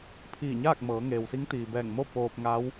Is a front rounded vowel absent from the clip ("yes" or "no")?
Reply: yes